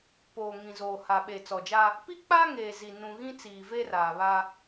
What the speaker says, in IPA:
po˨ŋĩ˨ zoː˨ha˨ ɓe˨t͡sɔ˨d͡ʒa˦ | pi˦k͡pa˦ŋeː˨zi˨ nũ˨ ɣĩ˦t͡siː˨ve˦ raː˨βa˦

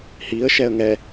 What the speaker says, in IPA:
hiə̯ ʃɛə̯ŋɛ

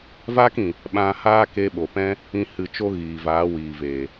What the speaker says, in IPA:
vaː˦kĩ˨ | ɓã˧haː˦ ke˧ɓo˨pɛ̃˦ | ĩ˧ hɨ˨ t͡ʃo˦ɣiː˨vaː˨˦wiː˨ veː˨

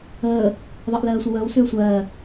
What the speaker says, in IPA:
əː | ðˤəːʔlɜːsʷʌwəːw sʏːsʷɜː

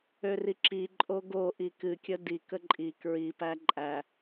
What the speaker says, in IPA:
øriǁi ǃʼoɡo ʔikɨkʲə di kəǃʼi kɹipæ ǃʼæ

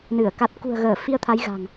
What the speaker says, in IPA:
nɨ˧˩ə̯ ka˨˩t̚kṳ˨˩ə̯ɣəː˧˩ fi˧ə̯t̪ʰa˨˦j ɣa̤˨˩ŋ

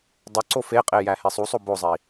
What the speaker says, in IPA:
dˤoǀo feqʼejæhe sˤusˤo bozˤi

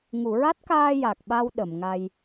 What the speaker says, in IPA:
ŋu˨˩˨ɹa˦˥t̚kaː˧ ja˨˩k̚ɓa˧w ɗə˨˩˨mŋa˧j

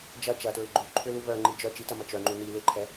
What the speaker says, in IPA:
d͡ʒɐ t͡ʃɐtɹɪ ɡ͡ǃu ǃʰʏlu βœŋ͡ǃi d͡ʒœ t͡ʃitɐmɐ t͡ʃœŋ͡ǃu ni lɪǃʰɛ

